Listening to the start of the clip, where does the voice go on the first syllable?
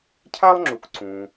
high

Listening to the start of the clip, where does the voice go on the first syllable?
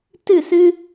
falling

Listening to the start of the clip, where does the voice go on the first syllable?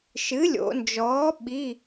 rising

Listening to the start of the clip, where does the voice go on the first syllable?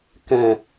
low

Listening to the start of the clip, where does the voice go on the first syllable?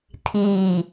low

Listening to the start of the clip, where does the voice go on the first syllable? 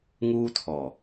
high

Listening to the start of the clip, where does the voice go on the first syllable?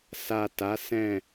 low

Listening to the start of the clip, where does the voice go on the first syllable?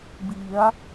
rising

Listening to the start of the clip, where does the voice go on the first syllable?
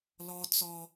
high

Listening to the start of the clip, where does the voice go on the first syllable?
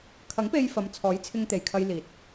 rising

